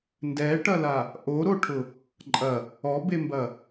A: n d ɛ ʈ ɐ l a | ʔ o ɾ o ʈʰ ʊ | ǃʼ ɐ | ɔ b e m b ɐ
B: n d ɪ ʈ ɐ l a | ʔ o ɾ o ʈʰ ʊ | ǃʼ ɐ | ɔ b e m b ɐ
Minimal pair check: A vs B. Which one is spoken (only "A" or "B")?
A